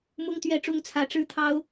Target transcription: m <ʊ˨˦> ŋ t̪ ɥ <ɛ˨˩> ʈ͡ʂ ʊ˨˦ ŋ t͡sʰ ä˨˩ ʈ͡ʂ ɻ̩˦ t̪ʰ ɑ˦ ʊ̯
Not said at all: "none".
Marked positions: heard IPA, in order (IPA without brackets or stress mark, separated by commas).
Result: ʊ˨˦, ɛ˨˩